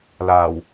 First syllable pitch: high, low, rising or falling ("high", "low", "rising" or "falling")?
low